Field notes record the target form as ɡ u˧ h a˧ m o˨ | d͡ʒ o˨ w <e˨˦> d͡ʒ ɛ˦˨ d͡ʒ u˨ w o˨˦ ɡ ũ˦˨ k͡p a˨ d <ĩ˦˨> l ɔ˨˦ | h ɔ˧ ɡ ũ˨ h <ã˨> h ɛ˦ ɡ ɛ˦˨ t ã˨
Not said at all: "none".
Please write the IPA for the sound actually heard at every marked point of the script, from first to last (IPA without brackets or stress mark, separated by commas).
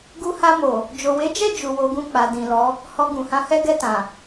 e˨˦, ĩ˨, ã˧